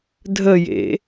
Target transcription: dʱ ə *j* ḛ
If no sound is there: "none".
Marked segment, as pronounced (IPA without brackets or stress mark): j